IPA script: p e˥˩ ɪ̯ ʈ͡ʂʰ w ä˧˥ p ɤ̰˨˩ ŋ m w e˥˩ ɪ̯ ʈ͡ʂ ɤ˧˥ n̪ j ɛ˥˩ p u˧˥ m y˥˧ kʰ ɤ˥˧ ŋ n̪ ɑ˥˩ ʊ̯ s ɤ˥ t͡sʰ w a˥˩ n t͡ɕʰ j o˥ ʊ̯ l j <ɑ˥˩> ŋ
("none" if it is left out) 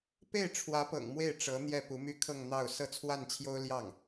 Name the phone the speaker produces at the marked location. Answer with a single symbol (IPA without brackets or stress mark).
ɑ˥˩